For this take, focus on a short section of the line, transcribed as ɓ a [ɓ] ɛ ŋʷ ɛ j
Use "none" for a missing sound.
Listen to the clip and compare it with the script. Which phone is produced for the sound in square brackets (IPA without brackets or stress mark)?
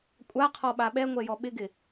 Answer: ɓ